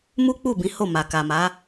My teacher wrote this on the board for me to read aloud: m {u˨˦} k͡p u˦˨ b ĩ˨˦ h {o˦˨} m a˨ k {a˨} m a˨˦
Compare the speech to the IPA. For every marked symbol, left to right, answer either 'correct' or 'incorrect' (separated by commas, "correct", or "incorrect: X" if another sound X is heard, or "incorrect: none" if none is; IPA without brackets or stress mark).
incorrect: u˦, correct, correct